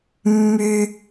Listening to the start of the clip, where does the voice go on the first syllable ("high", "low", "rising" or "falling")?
high